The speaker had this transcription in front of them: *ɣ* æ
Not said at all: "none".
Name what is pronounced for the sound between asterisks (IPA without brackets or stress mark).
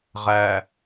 ʁ